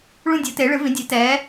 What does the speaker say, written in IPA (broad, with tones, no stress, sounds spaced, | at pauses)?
ɭ ũ˥˧ dʲ o˩˥ t e˩˥ ɭ ɨ˩˥ v ĩ˩˥ dʲ e˩˥ t ɛː˩˥